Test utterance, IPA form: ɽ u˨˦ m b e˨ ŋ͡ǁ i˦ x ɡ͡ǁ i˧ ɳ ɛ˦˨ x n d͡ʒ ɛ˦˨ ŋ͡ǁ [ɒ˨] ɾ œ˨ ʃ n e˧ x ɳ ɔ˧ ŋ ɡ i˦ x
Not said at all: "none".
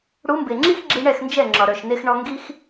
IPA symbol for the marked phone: ɒ˨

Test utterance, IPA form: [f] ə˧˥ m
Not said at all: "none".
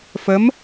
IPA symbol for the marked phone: f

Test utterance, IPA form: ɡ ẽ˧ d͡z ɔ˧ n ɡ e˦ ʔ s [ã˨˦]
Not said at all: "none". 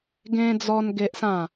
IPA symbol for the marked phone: ã˥˧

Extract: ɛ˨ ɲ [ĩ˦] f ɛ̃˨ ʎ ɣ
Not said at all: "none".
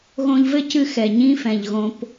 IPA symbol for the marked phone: ĩ˦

